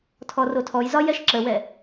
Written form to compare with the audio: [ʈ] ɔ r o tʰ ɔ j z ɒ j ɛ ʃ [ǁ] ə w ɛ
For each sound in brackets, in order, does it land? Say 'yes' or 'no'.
no, yes

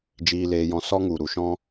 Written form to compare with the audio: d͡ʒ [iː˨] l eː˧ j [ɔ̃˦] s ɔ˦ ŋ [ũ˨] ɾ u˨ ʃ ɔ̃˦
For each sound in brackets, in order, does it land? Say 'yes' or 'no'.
no, no, no

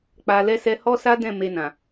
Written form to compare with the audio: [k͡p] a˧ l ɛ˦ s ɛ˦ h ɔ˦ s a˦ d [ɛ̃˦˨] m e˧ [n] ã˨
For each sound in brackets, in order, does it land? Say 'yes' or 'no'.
yes, yes, yes

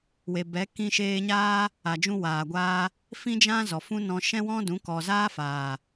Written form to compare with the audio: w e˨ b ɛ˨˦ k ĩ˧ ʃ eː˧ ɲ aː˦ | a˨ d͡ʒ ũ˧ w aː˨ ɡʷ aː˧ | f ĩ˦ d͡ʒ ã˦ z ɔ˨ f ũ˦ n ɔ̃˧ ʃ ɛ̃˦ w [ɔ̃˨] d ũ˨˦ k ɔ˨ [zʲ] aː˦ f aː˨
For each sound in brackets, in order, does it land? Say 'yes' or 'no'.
no, no

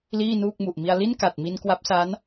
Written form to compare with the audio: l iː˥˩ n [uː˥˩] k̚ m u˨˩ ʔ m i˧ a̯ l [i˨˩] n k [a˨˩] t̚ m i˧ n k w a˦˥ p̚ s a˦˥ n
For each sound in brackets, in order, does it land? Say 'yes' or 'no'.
yes, no, yes

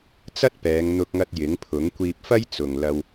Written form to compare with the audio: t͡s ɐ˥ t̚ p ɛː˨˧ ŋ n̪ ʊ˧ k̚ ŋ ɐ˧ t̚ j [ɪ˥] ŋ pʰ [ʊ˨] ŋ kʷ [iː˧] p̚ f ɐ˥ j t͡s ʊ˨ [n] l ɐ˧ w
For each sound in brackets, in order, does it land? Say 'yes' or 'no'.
no, no, yes, no

